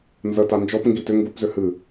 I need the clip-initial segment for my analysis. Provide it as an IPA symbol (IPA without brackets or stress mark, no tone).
n